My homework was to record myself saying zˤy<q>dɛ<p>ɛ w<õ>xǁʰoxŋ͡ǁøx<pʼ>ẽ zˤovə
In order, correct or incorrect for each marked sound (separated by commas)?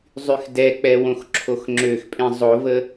incorrect, incorrect, correct, correct